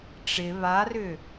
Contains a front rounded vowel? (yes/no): yes